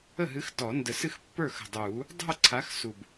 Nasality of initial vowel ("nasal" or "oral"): oral